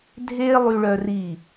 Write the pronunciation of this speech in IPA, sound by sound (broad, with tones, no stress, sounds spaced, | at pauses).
dʱ eː˥ lˠ y˧ ɭ œ˧ r i˧˩